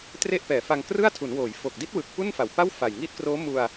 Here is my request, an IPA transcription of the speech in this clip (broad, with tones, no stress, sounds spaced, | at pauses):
t r e˥˩ ʔ p ɛː˨˩ f a˧ ŋ k r ɯ˥˩ a̯ tʰ u˩˦ n w oː˩˦ j f o˨˩ k̚ d i˦˥ t̚ w ɯ˨˩ k̚ p u˥˩ n f a˨˩ w p a˥˩ w f a˨˩ j ŋ iː˦˥ t̚ k r oː˦˥ m u˧ a̯